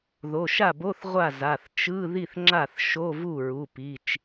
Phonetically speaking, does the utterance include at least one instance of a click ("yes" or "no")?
yes